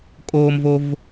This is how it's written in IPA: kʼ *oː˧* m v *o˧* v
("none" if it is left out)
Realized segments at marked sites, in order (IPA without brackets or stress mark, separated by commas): oː˧, o˧